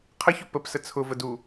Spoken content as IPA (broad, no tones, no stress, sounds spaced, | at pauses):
qʰ ə ç ʊ p ə p s ə t͡sʰ ʊ v ə d u